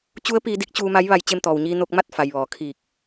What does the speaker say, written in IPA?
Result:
t͡ɕ u˧˥ ə̯ p iː˧ d i˧˥ k̚ t͡ɕ uː˧ m a˧˥ j ʋ a˧ j t͡ɕ e˧ m t̪ ɔː˩ w ɲ iː˧ n o˧ k̚ m a˥˨ t̚ f a˩ j ʋ ɔː˩ kʰ iː˧˩ k̚

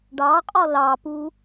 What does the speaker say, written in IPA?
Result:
ɖ ɑ qʼ ɔ l ɑ p u

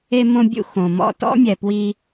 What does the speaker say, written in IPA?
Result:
e˦ m õ˦ bʲ ṵ˦ x õ˨ m ɔ̰˦˨ t ɔ̰˦ mʲ ɛ˨ p w i˦

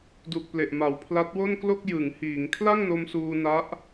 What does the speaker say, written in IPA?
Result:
d u˨˩ k̚ p l e˨˩ ʔ m a˨˩ w pʰ l a˦˥ t̚ w o˥˩ n k l o˥˩ k̚ j ɯ˩˦ ŋ h iː˩˦ ŋ kʰ l a˥˩ ŋ n o˧ m s uː˧ n a˦˥ ʔ

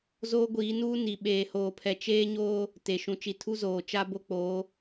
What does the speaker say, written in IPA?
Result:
z oː˦ ɡʷ iː˨˦ n uː˦ n i˨ ɓ eː˨ h oː˨ pʰ ɛ˨ t͡ʃ eː˦ ɲ oː˦ | t e˨ ʃ ũ˨ t͡ʃ i˨ tʰ u˦ z oː˨ t͡ʃ a˦ b o˦ k͡p oː˨˦

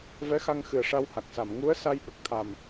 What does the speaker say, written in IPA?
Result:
v ɛ˧˥ x a˧ ŋ x ɨ˨˩ ə̯ ʂ a˧ w h a˨˩ k̚ s a˨˩˨ m ŋ u˧˥ ə̯ s a˧ j ɓ ə˨˩ k̚ t̪ʰ a˨˩ m

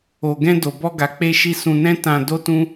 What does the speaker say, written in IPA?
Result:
o˨ ɡ ɛ̃˧ d o˨ b ɔ˧ ɡ a˨ k͡p e˧ ʃ i˧ s ũ˧ n ɛ̃˦ t ã˧ d o˦ t ũ˦

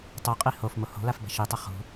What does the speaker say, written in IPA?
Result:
tˤ o qʼ i h o f m o h o̤ l a f b ɛ̤ ʃ i tˤ ɐ χ ṳ

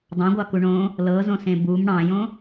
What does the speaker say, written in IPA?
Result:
dˤ ɑ̃ ɡʷ ɑ k u ɳ õ | l ɤ z õ s ẽ b u m ɽ ɑ̃ j õ

